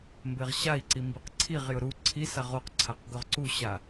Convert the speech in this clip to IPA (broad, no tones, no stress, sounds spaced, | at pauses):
m b e ʁ ɕ a i̯ ǀ i m b i q ǀʰ i ʁ j ʊ ɾ u ǀʰ i s a ʁ o q ǀʰ a q ɡ ʊ ʁ ǀ u ɕ a